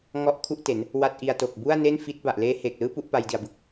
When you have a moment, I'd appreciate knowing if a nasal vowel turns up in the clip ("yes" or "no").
no